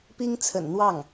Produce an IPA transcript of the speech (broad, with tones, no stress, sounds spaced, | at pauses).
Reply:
p i˥ ŋ t͡sʰ ə̰˨˩ n n̪ w ɑ˥˩ ŋ